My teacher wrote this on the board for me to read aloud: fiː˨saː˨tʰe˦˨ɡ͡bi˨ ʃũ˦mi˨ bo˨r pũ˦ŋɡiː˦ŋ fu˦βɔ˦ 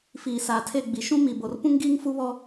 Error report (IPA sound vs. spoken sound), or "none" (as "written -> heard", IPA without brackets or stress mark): none